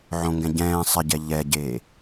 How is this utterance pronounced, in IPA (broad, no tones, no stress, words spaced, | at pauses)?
ʕõŋɡɛ̃ ɟɛ̃ː sˤɪɟɛ ʎɛɟeː